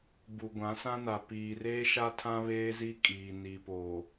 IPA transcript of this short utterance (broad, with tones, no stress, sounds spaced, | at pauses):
b u˨ ɡʷ ã˨˦ s ã˦ n a˨ p iː˨ r eː˦ ʃ a˦ tʰ ã˦ β eː˦ z i˦ kʼ iː˨ n i˨ p o˨